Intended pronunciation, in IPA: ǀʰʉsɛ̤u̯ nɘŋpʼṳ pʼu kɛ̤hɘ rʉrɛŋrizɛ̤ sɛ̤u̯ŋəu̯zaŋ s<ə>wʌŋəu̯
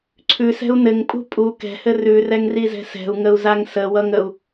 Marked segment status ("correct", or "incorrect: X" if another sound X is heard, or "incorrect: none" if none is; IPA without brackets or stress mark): correct